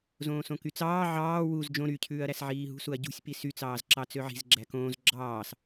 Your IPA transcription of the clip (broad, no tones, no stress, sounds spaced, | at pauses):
z õː s õ k y t͡s ɑː ʕ ɑː w u z d͡ʒ õ ɾ y cʰ ʉː ɐ̯ ɾ æ s ʕ iː ɦ ṳ s u ɐ̯ ɟ ṳ sʲ p i s y t͡s ɑː z ǁ ɑ t͡s ø ʕ i̤ z ɡ͡ǁ æ k õː z ɡ͡ǁ ɑː s